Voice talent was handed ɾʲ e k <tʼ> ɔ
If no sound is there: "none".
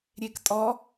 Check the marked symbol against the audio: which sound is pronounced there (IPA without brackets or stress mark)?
tʼ